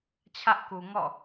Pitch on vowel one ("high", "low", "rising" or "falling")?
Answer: high